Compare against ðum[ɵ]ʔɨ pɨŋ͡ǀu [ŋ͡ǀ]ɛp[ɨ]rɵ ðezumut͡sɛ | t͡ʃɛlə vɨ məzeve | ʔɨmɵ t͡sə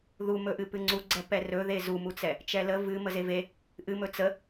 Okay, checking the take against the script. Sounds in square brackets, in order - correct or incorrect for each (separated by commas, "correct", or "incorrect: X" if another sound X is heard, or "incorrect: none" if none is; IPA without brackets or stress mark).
correct, incorrect: ɡ͡ǀ, incorrect: ɛ